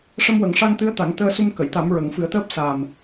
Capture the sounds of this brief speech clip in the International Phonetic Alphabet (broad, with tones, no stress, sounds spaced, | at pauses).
ʂ ə˧ m w ə˨˩˦ ŋ ʂ a˧ ŋ t̪ ɨ˧˥ ə̯ t̪ a˨˩˦ ŋ t̪ əː˧ s u˧ m k ə˨˩˨ j t̪ a˨˩˦ m ɹ ə˨˩˦ ŋ f ɨ˨˩˦ ə̯ t̪ əː˦˥ p̚ s a˨˩ m